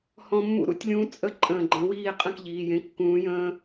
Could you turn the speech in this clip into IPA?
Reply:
hɔ̃˦ mːṵ˦ɾṵ˥˨tʲlʲũː˦ t͡sʼə˥˨ ǃʼə̃ː˧˩ɡ͡ǃə̃˨˥wiː˥˨ qʼə̃˥˨k ʎiː˩˧˩jẽ˨˥ kːũː˨˥jə̃ː˦

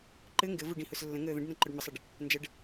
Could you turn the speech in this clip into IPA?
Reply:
ǃɘ ŋɡɘvu ɖĩhʊslːə̃ŋəː ðə̃ɖnɐ̃ ǃʊɖməsˤɐɖ | nd͡ʒɐɖ

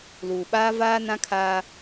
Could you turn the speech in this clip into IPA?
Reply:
luː˨ɓaː˦ vaː˦ nã˦kʰaː˦

